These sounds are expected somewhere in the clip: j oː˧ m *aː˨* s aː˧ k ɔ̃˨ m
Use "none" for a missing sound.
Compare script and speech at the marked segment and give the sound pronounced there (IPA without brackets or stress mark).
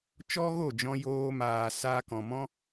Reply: aː˨